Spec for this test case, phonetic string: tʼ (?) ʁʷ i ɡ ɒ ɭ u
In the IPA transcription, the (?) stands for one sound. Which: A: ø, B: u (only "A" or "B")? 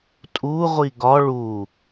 B